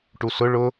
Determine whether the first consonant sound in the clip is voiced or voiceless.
voiceless